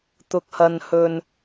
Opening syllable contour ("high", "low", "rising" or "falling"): low